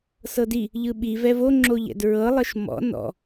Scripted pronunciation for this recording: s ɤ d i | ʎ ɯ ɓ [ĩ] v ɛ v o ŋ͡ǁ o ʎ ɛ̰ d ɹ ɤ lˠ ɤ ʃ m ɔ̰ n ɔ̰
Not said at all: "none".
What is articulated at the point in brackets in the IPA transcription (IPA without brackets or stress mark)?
i